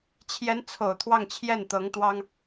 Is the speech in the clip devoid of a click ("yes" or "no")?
yes